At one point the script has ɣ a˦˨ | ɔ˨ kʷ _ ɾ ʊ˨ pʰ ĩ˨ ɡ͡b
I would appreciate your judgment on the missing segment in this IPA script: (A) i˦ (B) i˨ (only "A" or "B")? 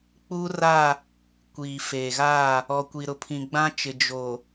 B